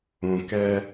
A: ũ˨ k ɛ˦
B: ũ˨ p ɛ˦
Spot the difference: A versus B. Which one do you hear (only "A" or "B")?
A